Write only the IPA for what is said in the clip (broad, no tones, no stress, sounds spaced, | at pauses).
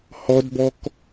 h ɔ d b ɔ k